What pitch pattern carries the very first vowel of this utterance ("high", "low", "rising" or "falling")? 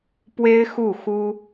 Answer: high